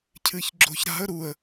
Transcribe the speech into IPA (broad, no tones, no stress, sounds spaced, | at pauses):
cʰ ɨ ç ɡ͡ǁ o̤ ç ɾ a̤ ə̯ ɾ u ə̯